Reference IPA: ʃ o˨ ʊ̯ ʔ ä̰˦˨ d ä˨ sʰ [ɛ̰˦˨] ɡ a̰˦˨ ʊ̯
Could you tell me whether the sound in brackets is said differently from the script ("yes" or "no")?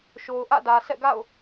no